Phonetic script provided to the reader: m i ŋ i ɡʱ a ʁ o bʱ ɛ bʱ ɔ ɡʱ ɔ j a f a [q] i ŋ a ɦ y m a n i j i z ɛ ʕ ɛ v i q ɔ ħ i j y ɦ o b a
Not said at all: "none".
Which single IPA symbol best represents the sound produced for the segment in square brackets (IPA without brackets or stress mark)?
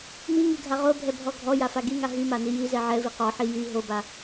ɡ